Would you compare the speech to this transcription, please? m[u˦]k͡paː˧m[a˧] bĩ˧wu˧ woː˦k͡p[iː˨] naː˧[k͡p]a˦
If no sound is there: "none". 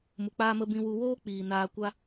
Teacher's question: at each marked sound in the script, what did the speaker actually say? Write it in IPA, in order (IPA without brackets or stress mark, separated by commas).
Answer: u˨, ə˧, iː˨, kʷ